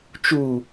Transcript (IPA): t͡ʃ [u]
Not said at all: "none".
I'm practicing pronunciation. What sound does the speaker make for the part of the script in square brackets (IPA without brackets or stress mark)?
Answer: u